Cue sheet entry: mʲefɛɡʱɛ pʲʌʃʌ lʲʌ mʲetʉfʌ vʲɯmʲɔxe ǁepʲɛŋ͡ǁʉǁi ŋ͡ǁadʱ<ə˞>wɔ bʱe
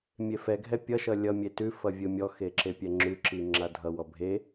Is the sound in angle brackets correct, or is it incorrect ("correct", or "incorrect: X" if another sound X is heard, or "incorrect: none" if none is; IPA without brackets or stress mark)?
incorrect: ʌ